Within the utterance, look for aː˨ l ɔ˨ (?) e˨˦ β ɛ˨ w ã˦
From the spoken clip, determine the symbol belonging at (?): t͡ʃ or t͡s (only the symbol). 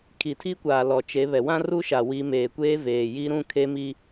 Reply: t͡ʃ